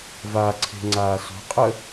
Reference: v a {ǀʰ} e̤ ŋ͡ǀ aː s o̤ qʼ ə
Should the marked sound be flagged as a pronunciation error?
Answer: no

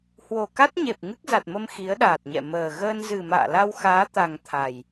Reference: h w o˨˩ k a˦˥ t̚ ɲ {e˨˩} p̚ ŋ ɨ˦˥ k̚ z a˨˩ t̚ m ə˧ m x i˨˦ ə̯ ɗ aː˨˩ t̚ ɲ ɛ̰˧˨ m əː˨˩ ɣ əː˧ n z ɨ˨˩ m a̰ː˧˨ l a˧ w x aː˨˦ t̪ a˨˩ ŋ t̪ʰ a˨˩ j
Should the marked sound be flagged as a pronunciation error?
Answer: no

